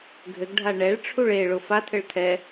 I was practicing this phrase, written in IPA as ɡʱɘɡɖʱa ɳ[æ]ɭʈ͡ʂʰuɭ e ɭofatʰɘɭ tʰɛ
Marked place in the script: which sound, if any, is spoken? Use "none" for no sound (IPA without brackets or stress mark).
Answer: ɛ